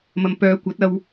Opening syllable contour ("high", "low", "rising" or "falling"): low